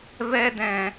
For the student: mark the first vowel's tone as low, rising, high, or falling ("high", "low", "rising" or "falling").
high